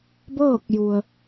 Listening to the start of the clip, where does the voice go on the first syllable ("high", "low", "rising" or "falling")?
falling